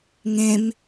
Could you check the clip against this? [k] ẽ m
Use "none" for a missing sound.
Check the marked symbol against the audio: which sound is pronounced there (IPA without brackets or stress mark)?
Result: ŋ